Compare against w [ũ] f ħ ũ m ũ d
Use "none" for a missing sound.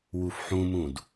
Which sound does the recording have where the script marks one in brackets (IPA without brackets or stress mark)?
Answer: u